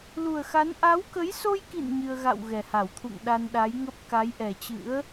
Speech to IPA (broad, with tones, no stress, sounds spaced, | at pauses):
l u˨˩ ə̯ x a˨˦ n ʔ a˨˦ w k ə˨˦ j s o˧ j k ḭ˧˨ n ɲ ɨ˧ ə̯ ɣ a̰˧˨ w ɣ ɛ˨˩ h a˧˩ w t̪ʰ ṵ˧˨ ŋ ɗ a˧ n ɗ a˨˦ j ŋ ə˦˥ p̚ k a˨˦ j ʔ ɛ˨˩ t͡ɕ ɨ̰˧˥ ə̯